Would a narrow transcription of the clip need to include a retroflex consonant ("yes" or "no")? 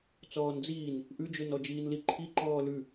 no